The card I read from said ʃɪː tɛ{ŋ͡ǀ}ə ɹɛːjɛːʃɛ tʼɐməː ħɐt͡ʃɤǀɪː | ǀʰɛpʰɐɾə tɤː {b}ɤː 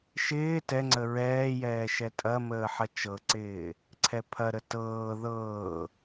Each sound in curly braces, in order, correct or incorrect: correct, incorrect: ð

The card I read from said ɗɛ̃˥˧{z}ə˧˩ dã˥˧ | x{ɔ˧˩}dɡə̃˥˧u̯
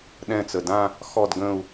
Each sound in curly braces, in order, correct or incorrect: incorrect: t͡s, incorrect: ɔ˥˧

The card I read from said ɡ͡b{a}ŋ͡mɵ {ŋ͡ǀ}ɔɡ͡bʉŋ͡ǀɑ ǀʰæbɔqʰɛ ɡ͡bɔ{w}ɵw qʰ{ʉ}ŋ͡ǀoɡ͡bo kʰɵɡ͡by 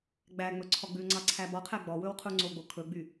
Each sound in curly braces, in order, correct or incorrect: incorrect: æ, incorrect: ǀʰ, correct, incorrect: u

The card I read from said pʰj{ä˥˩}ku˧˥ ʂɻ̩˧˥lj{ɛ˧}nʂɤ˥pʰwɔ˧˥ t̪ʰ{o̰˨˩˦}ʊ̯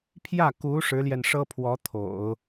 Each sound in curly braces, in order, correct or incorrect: correct, correct, correct

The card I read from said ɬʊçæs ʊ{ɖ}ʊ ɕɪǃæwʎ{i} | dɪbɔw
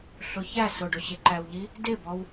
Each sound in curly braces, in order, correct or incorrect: correct, correct

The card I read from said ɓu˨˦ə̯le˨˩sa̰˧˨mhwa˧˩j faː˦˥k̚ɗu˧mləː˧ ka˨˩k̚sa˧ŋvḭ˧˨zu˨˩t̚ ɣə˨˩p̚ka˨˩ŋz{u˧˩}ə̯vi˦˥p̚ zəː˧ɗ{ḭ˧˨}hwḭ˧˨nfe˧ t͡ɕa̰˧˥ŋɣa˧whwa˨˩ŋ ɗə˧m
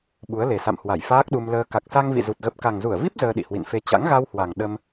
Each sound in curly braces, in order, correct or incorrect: correct, correct

